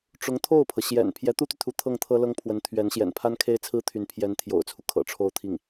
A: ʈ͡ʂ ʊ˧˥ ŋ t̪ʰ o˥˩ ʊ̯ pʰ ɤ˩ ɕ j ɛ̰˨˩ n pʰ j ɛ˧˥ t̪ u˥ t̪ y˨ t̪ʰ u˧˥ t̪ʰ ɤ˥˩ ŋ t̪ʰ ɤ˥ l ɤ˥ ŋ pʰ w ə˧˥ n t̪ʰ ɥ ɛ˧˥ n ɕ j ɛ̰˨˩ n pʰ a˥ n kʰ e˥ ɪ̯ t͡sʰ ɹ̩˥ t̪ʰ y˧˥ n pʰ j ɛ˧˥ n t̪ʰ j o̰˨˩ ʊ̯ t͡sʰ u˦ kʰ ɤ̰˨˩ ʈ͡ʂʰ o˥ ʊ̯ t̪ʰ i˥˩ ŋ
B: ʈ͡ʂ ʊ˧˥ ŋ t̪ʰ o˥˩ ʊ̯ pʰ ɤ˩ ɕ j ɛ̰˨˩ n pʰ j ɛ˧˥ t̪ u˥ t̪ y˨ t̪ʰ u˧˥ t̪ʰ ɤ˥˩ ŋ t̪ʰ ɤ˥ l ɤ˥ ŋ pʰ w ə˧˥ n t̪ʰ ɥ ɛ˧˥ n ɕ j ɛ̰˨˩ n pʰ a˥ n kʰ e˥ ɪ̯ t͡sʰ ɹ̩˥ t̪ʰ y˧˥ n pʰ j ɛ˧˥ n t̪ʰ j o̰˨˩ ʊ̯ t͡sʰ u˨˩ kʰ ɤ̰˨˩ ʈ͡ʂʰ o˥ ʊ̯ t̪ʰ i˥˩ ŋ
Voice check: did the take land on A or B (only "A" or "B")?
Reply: A